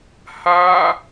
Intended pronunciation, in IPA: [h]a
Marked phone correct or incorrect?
correct